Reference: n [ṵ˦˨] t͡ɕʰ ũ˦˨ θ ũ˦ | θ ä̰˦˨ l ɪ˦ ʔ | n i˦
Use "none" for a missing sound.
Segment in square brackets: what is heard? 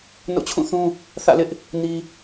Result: o̰˦˨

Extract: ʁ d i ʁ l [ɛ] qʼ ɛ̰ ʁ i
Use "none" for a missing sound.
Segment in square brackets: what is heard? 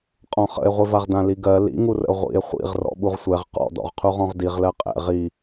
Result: ɜ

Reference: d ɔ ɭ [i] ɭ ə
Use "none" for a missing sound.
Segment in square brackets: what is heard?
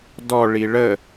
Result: i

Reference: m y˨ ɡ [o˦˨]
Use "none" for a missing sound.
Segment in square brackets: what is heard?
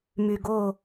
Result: o˦˨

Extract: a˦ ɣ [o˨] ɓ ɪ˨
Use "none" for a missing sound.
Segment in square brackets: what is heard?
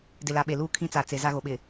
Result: o˨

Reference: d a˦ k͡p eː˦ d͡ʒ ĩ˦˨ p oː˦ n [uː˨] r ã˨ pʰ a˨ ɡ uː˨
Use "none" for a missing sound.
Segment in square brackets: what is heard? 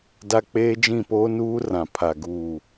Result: uː˦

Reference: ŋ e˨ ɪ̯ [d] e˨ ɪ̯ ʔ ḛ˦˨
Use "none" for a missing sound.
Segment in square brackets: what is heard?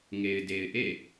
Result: d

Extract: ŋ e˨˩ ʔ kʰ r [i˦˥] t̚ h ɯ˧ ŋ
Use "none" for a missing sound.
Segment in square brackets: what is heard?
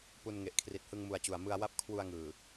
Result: i˨˩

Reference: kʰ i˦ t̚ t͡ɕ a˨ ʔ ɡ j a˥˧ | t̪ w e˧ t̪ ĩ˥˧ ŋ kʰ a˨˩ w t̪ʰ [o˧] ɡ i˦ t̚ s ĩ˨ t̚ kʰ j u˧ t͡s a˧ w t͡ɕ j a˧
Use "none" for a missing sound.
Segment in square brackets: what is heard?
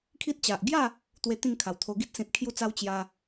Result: o˧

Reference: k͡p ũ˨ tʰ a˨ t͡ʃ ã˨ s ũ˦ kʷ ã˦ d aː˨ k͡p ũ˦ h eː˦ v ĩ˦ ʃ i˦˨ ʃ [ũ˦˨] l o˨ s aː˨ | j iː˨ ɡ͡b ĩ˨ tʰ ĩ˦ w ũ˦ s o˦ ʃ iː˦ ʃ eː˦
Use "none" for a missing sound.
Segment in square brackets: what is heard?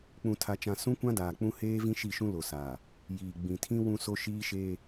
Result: ũ˦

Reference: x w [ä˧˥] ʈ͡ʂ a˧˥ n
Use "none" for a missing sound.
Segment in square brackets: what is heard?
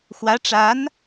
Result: ä˧˥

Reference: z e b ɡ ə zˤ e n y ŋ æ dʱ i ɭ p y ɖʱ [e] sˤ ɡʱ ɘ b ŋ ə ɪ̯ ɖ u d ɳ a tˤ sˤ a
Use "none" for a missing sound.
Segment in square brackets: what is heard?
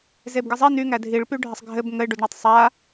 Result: ɘ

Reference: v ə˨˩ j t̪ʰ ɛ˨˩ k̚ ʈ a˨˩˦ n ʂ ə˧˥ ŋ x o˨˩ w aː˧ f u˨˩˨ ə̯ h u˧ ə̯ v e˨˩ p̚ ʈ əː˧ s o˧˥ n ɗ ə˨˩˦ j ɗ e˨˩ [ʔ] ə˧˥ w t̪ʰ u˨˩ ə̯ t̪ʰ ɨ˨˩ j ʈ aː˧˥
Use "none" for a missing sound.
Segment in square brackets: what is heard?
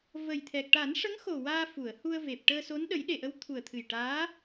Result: ʔ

